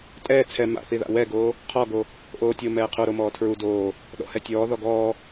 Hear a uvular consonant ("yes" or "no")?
yes